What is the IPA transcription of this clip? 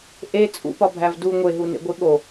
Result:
ʔ e t͡sʼ ṵ p ɒ bʱ æ v d u ŋʷ e ɦ u n ḛ ɡʷ i ɠ o

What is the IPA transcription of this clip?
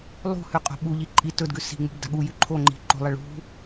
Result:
lˠ ṳ h ʉ qʼ o̤ ɓ u ʎ i ǃʼ i t ɵ d ɡ ʉ s i̤ ŋ͡m ṳ b d a̤ ɠ u j ʉ ǃʰ o ŋ͡ǃ i̤ ǃ o̤ lˠ ɐ ɭ ṳ

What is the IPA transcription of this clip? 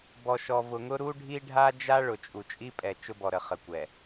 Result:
b ɔ˨ ʃ ɔ˨ v ʊ˨ ŋ ʊ˦ ɾ u˦ ɖʱ i˦ ɖʱ a˦ d͡ʒ a˦ ɭ ʊ˨ t͡ʃʼ u˨ t͡ʃʼ i˦ pʼ ɛ˨ t͡ʃ ʊ˦ b ɔ˨ ɾ ə˨ χ ə˨ kʷ ɛ˨

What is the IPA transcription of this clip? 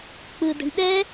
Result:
k͡p ɯ d ə̤ ɳ ɗ ɛ

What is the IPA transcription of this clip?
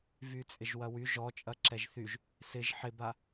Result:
v y t͡sʼ ɪ ʒ w ɐ w y ʒ ɔ t͡ʃʼ ɐ ǁ ɛ ʒ θ y ʒ | s ɪ ʒ ħ ɪ b a

